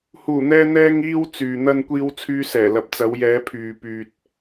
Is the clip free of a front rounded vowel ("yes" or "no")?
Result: no